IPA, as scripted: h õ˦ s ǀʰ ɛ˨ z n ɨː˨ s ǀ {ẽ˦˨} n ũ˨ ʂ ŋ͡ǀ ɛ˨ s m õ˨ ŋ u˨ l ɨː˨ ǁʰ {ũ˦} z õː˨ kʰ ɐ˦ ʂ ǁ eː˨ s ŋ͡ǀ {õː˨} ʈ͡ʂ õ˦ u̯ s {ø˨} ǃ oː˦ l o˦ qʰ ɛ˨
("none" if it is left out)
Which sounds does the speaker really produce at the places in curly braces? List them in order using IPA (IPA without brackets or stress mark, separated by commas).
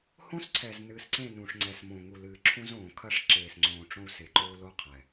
ẽ˦˨, ũ˦, õː˨, e˨